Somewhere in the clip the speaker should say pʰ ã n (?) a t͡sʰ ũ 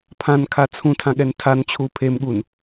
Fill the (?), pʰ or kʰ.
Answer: kʰ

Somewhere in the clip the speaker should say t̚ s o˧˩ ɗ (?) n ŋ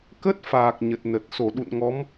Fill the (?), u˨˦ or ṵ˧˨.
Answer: ṵ˧˨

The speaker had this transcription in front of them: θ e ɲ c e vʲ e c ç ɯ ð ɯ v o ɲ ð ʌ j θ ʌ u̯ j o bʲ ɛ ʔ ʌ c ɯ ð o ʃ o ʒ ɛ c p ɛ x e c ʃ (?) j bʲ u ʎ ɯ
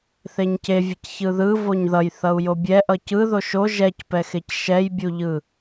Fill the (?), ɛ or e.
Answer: ɛ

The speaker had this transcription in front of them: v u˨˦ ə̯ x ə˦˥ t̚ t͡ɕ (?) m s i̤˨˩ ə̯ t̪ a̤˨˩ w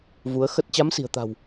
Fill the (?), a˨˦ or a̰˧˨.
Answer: a˨˦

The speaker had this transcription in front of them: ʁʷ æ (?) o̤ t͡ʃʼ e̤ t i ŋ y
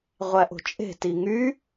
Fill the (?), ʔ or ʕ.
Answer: ʔ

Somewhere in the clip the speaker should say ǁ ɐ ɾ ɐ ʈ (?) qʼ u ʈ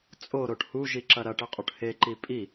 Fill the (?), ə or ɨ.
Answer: ɨ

